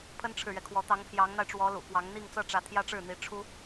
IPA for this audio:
pʰ ə˥ n ʈ͡ʂʰ ɻ̩˨ ɥ ɛ˩ kʰ w ɔ˧˥ t̪ ɑ˧˥ ŋ pʰ j ɑ˧˥ ŋ n̪ a˧ ɪ̯ ʈ͡ʂ w ɔ˧˥ l ṵ˨˩ k w ɑ˧˥ ŋ n̪ i˥˧ ŋ t͡s ɤ˥˩ ʈ͡ʂ ä˧˥ t̪ʰ j ä˥ ʈ͡ʂ ɻ̩˥˩ n̪ i˧˥ ʈ͡ʂʰ u˥

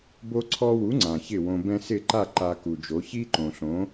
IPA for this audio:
b o˧ ǀʰ ɔ˧ w u˩˥ ŋ͡ǀ ã˩ ç ɪ˥˩ w õ˧ b ɛ̃˥ s ɪ˥˩ ǃ a˥˩ ǃ a˧ k u˩ d͡ʒ o˩˥ ç i˥ ǃ õ˩ ɬ õ˩˥

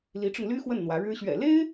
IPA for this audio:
l i˧˥ ʈ͡ʂ ʊ˧ ŋ l y˥ x w ə˥˩ n n̪ w ä˧˥ ɻ ɻ̩˥ ɕ ɥ ɛ̰˨˩ l e˥ ɪ̯

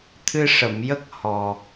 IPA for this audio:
t̪ʰ ɨ˧ ʂ ə˨˩˨ m j ə˦˥ k̚ h ɔ˨˩

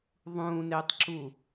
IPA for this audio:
ðˤ ũː n eː tˤ ǁ u

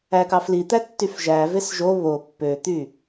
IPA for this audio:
æ k ɑ f l i t̪ æ tː y f ʒ æ v e s ʒ o β o pː ø t̪ y

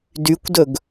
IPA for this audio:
d y kʷ d ɵ ɡ

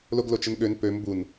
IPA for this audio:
l o ɡ l o t͡ʃ ə n ɠ ø n p ø m b u n

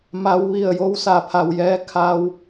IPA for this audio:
m a˩˧ w ʋ i˧˩ ə̯ j o˧˥ w s a˩˧ pʰ a˩ w j ɛː˧ kʰ a˧ w

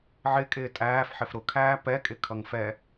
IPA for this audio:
ʕ ɪ kʼ ɪː tʼ æː f ħ ɪ f ɾ ʊ kʰ æː p ɛ kʼ ɪ kʰ ʌ ŋ f ɛ

